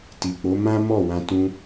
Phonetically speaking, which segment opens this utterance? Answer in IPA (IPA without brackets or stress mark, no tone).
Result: t